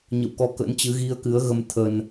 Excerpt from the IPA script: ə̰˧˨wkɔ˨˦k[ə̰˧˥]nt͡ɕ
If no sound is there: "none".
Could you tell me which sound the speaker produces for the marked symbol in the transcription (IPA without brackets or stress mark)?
ə̰˧˥